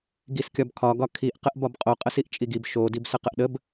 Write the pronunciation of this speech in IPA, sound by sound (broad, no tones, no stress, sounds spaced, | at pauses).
ɡ i s kʲ ɒ b kʰ ɒ ɡ ɒ kʰ i ʔ q ə ʔ b ɒ b qʼ o qʼ ə s i ʔ t͡ʃʼ i ɡ i b ʃ o d i b s ə q ə ʔ ɗ ə b